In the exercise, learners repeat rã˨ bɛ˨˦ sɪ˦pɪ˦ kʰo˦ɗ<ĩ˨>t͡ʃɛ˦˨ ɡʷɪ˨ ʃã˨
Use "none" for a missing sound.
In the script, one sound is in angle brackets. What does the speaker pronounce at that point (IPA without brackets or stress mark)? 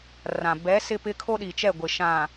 i˨